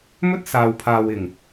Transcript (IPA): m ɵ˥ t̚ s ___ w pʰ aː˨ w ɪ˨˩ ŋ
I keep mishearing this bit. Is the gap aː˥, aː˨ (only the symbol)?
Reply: aː˨